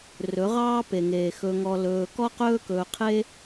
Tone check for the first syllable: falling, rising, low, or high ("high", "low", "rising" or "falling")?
rising